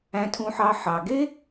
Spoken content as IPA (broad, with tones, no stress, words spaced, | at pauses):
æ̃˦tʰũ˦ħɑ˦ ħɑ˨ɡe˦